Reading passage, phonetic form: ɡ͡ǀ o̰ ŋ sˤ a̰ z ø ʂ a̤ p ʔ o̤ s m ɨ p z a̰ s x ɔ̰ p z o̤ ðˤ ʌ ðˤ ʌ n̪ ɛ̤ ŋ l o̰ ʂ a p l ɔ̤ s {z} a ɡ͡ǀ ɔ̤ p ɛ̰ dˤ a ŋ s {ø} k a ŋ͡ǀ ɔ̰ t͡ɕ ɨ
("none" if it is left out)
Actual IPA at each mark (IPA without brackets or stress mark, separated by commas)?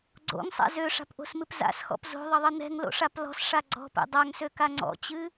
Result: ʂ, ø